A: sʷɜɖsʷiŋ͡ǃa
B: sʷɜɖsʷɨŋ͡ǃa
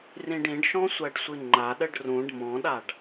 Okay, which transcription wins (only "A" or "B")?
B